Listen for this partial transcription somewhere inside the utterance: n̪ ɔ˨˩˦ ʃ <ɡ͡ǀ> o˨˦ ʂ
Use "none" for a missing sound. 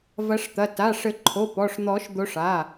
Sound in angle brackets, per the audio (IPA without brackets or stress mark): d̪